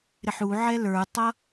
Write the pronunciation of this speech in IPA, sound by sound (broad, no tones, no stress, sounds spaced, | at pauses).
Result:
ɾ ɪ ħ u ʕ ɛ l ə˞ tˤ ʌ